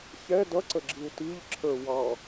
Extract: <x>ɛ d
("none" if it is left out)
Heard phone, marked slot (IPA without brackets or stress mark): ç